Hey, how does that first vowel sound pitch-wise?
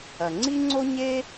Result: low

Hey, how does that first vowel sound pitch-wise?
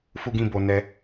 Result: high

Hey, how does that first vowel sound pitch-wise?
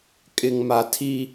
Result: low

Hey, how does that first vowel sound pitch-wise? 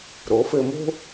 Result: rising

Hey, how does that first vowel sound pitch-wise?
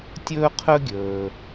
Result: high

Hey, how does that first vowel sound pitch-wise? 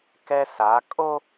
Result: high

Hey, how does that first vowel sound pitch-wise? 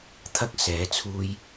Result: high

